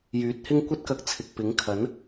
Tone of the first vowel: rising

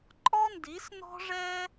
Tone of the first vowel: high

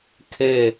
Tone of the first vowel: falling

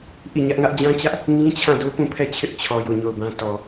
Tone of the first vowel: falling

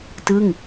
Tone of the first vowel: falling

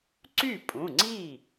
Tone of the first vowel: falling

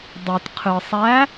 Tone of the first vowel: low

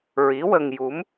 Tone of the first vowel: rising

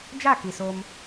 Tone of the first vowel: falling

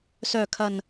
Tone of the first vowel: low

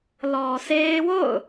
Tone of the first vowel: low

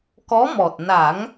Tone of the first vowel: rising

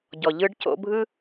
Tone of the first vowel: low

